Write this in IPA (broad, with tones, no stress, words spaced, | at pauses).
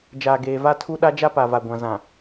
d͡ʒaː˨ɡeː˨va˦ tʰu˦ ɗa˦d͡ʒa˦pa˨va˨ ɡʷã˨zã˨